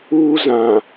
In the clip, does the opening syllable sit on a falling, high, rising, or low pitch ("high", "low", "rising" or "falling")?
high